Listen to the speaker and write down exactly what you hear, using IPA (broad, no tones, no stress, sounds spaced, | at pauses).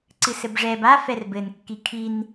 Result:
ǀ ɨ s ɘ b ʐ ɛ b a f ɛ r b ɘ n kː i kʰ i n